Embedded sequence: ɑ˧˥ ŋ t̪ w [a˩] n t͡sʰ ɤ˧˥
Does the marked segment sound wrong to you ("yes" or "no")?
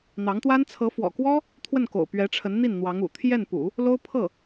yes